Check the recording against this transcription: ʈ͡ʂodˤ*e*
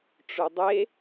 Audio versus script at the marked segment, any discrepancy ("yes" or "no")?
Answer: no